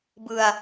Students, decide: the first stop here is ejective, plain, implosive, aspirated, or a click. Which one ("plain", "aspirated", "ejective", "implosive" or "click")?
plain